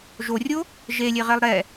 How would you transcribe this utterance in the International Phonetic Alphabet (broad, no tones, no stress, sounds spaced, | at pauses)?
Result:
ʒ o rʲ o | ʒ e lʲ e ʁ e lˠ ɾ ɛ